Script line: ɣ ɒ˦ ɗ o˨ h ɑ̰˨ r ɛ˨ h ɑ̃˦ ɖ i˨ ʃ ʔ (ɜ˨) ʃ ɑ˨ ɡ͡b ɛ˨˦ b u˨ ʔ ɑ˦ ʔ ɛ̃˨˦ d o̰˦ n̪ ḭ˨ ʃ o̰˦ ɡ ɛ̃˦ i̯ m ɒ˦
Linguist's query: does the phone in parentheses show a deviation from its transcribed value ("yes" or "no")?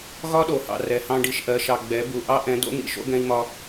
no